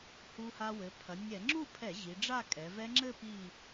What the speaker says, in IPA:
h u˧ h a˧ w ɘ˩˧ pʰ ɐ˩˧ nʲ ɛ˧˩˧ ŋ͡ǁ u˥˧ pʰ ɛ˧˩˧ ʑ i˩˧ ɖ͡ʐ a˥˧ kʼ ɛ˩˧ v ɛ˦˥ ŋ͡ǁ ɘ˥˧ p i˧˩

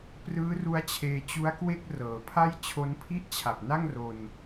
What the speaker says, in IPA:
p r ɯː˦˥ r u˦˥ a̯ t͡ɕʰ eː˧ t͡ɕ u˦˥ a̯ k w e˥˩ k̚ r ɤː˩˦ pʰ a˥˩ j t͡ɕʰ o˦˥ n pʰ i˥˩ ʔ t͡ɕʰ a˨˩ p̚ n a˥˩ ŋ r o˧ n

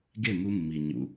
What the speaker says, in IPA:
ɡ e˦˨ m u˧ mː i˨ ɲ ṵ˨

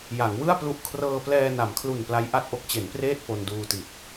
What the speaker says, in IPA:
j a˩˦ ŋ w ɯ˥˩ a̯ p l u˦˥ ʔ kʰ r ɤː˧ p l ɛː˧ n a˩˦ m kʰ l u˨˩ n p l a˦˥ j ʔ a˥˩ t̚ ʔ o˦˥ k̚ t͡ɕ e˩˦ n p r eː˥˩ t̚ p o˧ n d uː˧ t i˨˩ t̚

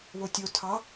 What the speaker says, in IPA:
β o tʲ o tʰ ɑ

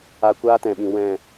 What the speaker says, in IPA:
a˧ kʷ aː˦ t ɛ̃˨ ɓ ĩ˨ w ɛ̃˦˨

